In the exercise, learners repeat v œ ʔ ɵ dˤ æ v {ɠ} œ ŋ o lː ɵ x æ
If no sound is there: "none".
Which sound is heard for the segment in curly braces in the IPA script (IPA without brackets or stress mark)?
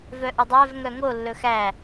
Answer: ŋ